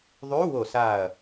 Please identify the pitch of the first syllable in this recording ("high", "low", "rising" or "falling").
rising